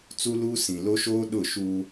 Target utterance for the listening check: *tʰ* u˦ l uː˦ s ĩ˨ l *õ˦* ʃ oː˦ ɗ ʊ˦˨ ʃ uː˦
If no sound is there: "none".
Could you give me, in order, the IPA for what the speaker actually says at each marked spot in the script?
t͡s, o˦

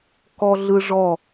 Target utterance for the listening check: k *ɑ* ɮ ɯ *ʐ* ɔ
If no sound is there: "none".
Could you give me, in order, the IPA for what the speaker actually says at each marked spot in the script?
ɔ, ʐ

